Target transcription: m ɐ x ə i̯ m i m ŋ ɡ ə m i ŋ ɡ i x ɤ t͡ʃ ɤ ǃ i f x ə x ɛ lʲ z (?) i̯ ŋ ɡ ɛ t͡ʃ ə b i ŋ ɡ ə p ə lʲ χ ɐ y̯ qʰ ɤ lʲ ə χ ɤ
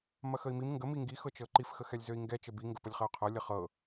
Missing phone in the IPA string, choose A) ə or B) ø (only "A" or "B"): B